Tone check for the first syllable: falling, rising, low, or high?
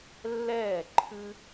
falling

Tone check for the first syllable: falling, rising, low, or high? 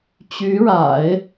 rising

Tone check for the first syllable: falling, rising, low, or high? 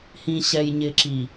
low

